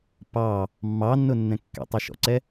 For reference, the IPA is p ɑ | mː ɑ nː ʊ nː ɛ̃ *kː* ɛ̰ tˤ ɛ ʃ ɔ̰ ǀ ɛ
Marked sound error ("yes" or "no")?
no